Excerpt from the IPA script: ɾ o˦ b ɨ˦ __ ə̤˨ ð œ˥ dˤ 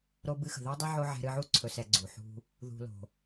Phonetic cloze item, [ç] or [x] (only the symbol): x